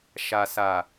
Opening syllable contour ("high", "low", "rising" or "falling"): low